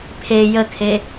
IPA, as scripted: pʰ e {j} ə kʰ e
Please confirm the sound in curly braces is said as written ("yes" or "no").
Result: yes